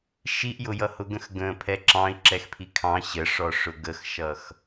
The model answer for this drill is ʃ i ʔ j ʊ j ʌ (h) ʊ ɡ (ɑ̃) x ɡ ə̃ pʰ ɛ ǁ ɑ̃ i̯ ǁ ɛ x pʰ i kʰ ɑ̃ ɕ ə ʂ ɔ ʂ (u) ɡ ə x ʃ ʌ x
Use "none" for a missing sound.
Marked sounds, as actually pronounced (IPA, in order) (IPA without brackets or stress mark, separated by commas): h, ə̃, ʊ